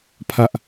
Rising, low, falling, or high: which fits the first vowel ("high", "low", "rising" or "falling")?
high